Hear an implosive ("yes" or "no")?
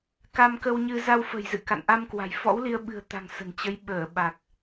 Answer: yes